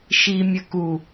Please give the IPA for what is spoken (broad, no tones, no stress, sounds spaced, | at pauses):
ʃ i mʲ ə k u